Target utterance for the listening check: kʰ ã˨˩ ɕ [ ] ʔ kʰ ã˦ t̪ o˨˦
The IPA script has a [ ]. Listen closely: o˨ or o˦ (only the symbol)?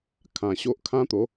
o˦